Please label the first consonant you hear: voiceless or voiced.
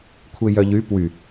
voiceless